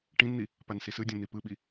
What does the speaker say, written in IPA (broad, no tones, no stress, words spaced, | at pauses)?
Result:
ʈĩnn̪i | pansisɯdʲõ n̪ipɯɓi